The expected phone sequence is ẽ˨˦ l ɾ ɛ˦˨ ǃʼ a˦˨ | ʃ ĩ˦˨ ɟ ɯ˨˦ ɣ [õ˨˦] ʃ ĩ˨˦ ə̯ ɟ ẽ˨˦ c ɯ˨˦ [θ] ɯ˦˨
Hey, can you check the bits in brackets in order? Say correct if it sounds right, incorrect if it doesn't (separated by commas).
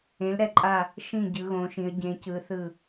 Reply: correct, correct